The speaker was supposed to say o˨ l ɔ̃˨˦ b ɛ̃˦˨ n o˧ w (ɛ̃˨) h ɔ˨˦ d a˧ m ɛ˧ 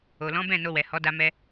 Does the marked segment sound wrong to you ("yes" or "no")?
yes